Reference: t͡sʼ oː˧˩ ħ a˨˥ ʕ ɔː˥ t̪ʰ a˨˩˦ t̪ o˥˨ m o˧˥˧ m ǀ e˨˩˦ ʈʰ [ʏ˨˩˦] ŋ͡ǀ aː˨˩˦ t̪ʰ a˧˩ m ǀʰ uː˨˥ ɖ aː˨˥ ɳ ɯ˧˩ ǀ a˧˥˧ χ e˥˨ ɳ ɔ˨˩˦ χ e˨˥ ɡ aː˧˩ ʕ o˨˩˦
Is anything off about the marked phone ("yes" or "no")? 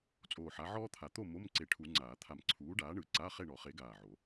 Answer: yes